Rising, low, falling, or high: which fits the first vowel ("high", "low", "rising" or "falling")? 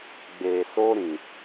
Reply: low